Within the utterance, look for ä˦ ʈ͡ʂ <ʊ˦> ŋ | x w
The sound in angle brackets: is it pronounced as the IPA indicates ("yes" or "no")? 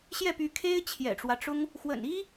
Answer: no